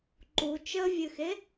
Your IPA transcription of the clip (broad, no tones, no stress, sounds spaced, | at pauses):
ǃ u t͡ʃ ə vʲ ɨ x e